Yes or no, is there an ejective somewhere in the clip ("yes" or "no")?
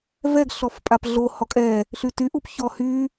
yes